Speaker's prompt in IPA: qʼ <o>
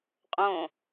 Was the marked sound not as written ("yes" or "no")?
yes